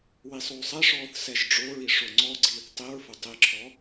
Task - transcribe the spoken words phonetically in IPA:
w i sˤ oː sˤ ɛ ʂ ɔː θ s ɛ ʒ ɖ͡ʐ o ɹ i ʂ o ŋ͡ǀ ɔ ɡ͡ǀ iː θ tˤ i ɹ f ʊ tˤ i ǁʰ ɔ

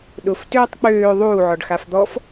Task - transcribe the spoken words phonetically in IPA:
ɗ ʊ f t øː tˤ k͡p øː ðˤ uː ʕ ɔ ɖ x a f d̪ ɔ f

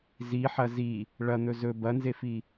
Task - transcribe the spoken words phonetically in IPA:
z i ħ ɐ z i | ɭ ɐ n̪ ɵ z ɵ b ɐ n z e f i

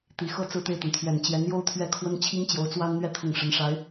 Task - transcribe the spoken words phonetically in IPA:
t̪ i˨˩ x ɤ˥˧ t͡s ɹ̩˥˧ t̪ e˥˩ ɪ̯ t̪ ə˩ n t̪ʰ ɥ ɛ˨˩ n t͡ɕ j ɛ˧˥ n j o˥ ʊ̯ t̪ʰ ɥ ɛ˥˩ kʰ w ə˥ n t͡ɕʰ i˥ ŋ t͡ɕ j o˧˥ ʊ̯ t͡s w a˥ n n̪ ɥ ɛ˥ t̪ʰ ʊ˥˩ ŋ ʂ ə˧˥ n ʂ a˧˥ ɪ̯

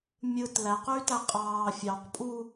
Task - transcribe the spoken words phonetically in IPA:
mʲ ɯ t l æ q yː t æ qʼ ɑː fʲ ɑ q pʼ u

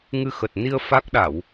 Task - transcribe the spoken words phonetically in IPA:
ŋ ɨ˧ x ə˨˩ t̚ n i˧ ə̯ f a˦˥ k̚ ɗ a˧˩˨ w

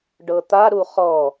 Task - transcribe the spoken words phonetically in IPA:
ɖ ɤ t̪ a ɾ u χ ɔ

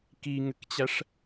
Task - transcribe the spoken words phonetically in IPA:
k i ŋ ɘ k t͡ɕ æ ʂ

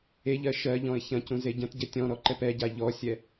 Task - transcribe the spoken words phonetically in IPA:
e ʎ ɜ ʃ ɜ ʎ ɔ̃ ɪ̯ ç ɐ̃ c ũ z e ɟ ɐ̃ t ɟ ɛ tʲ ɔ̃ ɾ ɔ ǃ ɛ p ɛ ɟ a ʎ ɔ sʲ ɛ

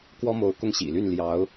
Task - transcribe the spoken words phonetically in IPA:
k w ɔ˥ m o˧˥ ʊ̯ k ʊ˥˩ ŋ ɕ ḭ˨˩ l y˥˩ n l j ɑ˧˥ ʊ̯

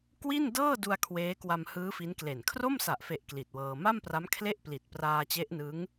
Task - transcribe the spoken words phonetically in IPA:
k w i˥˩ n d ɤː˥˩ d u˧ a̯ kʰ w eː˦˥ k w a˧ m h ɯː˦˥ f i˦˥ n k l e˨˩ n kʰ r o˥˩ m s a˨˩ ʔ f e˨˩ ʔ k l i˨˩ t̚ w ɤː˧ m a˥˩ m p r a˦˥ m kʰ l e˥˩ ʔ p l i˨˩ t̚ p r aː˧ t͡ɕ e˦˥ ʔ n ɯ˦˥ ŋ

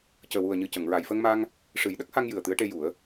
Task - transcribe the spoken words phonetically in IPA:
c əː˨˩ w u˨˩ ə̯ ɲ ɨ˨˩ c ə˨˩˨ ŋ ɹ a˨˩˨ j f ə˧ ŋ m a˧ ŋ | ʂ ɨ˨˩˦ j ɗ ə˦˥ k̚ h a˧ ŋ j ɨ˨˩ ə̯ t̪ ɨ˧˥ ə̯ ʈ e˧ j u˨˩˦ ə̯

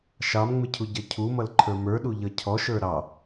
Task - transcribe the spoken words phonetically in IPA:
ʃ ɑ m ŋ͡m ɪ cʰ u ɟ ʌ cʰ u m ʌ l ǃʰ ə˞ m ə˞ ɗ u ʎ ʌ cʰ ɔ ʃ ə˞ ɾ ɑ

